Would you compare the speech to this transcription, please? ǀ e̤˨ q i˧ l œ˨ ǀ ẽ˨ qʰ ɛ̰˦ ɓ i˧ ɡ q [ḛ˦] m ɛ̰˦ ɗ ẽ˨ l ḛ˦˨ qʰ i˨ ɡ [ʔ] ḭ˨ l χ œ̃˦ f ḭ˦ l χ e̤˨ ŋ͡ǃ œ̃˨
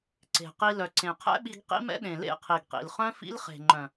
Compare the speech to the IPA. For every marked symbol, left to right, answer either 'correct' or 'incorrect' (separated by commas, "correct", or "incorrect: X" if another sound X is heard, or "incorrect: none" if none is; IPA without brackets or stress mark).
incorrect: ḭ˦, incorrect: q